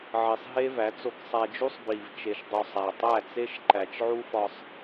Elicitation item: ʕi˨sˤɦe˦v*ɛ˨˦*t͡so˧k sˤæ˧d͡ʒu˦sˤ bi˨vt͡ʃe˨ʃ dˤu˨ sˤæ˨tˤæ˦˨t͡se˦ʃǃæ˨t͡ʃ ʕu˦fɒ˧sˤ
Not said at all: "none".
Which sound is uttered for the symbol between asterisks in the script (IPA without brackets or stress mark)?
æ˨˦